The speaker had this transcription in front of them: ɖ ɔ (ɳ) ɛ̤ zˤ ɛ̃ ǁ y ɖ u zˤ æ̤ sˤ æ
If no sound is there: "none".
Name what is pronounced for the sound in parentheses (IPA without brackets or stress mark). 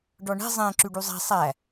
ɳ